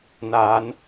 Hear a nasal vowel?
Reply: no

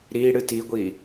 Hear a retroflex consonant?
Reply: yes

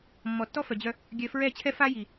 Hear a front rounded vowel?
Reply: yes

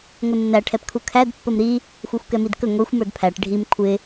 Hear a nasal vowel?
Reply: no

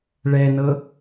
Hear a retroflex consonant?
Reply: yes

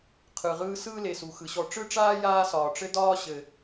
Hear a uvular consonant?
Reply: yes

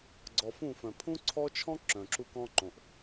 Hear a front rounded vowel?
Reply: yes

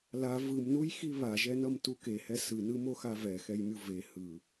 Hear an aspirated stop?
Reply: no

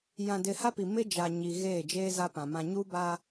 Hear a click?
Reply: no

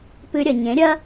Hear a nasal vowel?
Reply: yes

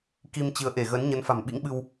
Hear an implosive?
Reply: yes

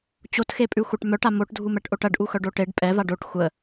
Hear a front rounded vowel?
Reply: yes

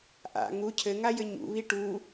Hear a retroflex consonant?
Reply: yes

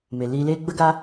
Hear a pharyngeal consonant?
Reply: no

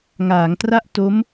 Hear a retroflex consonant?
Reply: no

